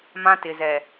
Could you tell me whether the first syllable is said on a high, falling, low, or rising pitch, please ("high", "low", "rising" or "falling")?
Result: high